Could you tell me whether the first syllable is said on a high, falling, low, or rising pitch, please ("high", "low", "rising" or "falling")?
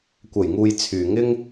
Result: low